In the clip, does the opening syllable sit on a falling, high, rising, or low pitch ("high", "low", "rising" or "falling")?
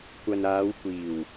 low